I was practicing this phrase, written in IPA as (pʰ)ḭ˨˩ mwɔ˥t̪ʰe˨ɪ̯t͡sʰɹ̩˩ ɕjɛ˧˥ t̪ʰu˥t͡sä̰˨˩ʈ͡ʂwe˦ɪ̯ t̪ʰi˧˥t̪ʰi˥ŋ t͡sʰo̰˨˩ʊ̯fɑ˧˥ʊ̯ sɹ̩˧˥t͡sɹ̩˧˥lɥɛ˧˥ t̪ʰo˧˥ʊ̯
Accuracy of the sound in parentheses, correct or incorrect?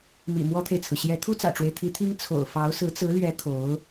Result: incorrect